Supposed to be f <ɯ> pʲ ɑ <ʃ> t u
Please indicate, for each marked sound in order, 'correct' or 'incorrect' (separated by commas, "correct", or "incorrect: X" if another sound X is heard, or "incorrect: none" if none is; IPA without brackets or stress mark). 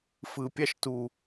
correct, correct